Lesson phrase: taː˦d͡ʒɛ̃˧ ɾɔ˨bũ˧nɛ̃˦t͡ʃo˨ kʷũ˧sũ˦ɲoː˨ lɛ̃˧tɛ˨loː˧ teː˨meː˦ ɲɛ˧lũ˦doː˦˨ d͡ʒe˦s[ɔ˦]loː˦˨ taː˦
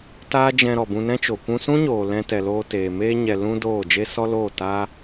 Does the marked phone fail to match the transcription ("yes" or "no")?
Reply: no